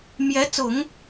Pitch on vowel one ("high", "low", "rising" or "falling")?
rising